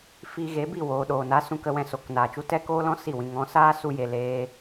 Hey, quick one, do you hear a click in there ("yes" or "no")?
no